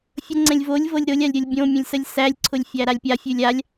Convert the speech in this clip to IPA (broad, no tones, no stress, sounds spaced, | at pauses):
fʲ ə ŋ͡ǀ ɛ̃ lʲ v o lʲ v ɤ lʲ ɾ ʊ lʲ a lʲ ɾʲ o lʲ bʲ õ mʲ ə̃ lʲ s ə lʲ s æ lʲ ǀʰ ʊ lʲ fʲ æ ɾ a lʲ pʲ a fʲ ʉ lʲ a lʲ